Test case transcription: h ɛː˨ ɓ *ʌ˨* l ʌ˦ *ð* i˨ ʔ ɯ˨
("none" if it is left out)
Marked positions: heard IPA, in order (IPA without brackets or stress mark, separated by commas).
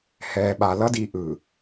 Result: a˨, d